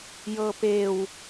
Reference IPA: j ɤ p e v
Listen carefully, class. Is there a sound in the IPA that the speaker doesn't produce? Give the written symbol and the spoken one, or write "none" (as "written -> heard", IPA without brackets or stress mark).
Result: v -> w